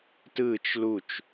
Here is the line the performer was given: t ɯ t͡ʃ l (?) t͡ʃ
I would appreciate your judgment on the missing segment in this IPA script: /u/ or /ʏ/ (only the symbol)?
u